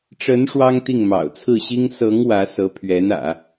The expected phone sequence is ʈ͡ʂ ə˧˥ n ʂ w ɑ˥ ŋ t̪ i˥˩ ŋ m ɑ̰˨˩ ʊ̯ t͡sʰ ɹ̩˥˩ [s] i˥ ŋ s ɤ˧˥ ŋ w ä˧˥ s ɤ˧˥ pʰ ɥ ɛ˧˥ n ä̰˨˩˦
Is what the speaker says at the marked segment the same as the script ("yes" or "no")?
no